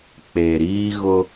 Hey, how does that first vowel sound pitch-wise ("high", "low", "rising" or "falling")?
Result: low